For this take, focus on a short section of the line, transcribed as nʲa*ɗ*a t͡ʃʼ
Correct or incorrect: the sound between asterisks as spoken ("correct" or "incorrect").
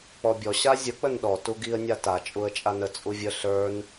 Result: incorrect